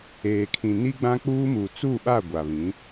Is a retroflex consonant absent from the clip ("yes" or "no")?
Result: yes